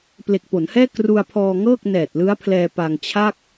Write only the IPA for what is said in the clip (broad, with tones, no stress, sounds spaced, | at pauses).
p l e˨˩ k̚ p o˩˦ n h ɛː˥˩ k r u˧ a̯ pʰ ɔː˧ ŋ ɤː˥˩ k̚ n ɛː˨˩ t̚ l ɯ˦˥ a̯ pʰ l ɛː˧ p a˧ ŋ t͡ɕʰ a˥˩ k̚